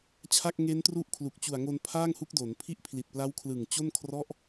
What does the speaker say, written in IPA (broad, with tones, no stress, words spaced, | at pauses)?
t͡ɕʰa˥˩k̚ŋe˦˥ntru˥˩ʔkʰlu˨˩k̚ t͡ɕu˨˩a̯ŋo˧n pʰaː˥˩ŋhu˦˥k̚do˩˦n pʰi˦˥ʔpʰli˨˩t̚pla˦˥wkʰlɯ˨˩ŋ t͡ɕo˥˩nkʰrɔ˥˩ʔ